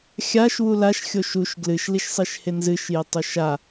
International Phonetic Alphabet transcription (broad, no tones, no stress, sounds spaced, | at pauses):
xʲ a ʃ w u l a ʃ xʲ o ʃ u ʃ ɡ l ɨ ʃ l i ʃ sˤ e ʃ h e n z ɨ ʃ j e tˤ o ʃ a